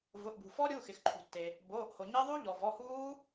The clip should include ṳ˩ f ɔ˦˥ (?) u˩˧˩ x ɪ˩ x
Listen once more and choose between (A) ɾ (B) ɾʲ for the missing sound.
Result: B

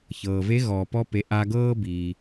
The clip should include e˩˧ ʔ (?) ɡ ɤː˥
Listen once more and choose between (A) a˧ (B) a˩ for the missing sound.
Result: A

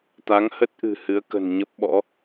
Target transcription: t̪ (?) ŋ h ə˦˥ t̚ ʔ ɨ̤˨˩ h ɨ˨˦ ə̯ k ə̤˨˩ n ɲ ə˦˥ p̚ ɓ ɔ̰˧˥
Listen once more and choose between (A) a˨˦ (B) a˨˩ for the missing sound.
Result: A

